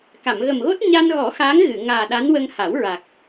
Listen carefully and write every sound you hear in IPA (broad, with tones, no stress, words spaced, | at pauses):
ka˨˩˨mɣə˨˩mɣo˦˥t̚ ɲa˧nɣɔ˨˩˦ xaː˧˥ŋɣɨ˨˩˨ ŋaː˨˩ɗa˧˥nwə˧ŋ ha˨˩˦wɹa˨˩k̚